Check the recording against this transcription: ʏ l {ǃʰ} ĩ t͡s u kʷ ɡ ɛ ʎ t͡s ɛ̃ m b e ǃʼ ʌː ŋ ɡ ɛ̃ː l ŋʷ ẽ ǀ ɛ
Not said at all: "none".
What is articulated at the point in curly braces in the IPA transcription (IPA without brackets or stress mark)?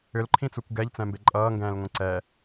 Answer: ǃʰ